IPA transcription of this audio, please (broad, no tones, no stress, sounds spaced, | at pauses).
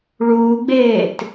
ɭ uː ɡ͡b eː t